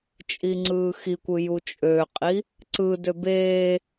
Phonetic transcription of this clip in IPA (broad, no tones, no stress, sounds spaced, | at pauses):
t͡ʃʼ i ŋ͡ǀ ɯː x i kʷ ɯ j u t͡ʃʼ ø qʼ i | ǀ ɯ d ø b eː